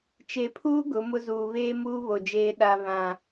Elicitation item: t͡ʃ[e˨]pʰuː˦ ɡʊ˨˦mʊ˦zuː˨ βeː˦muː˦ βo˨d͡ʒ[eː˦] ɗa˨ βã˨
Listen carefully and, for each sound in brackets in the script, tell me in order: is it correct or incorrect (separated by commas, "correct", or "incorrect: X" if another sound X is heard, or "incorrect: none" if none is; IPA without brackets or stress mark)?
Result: correct, correct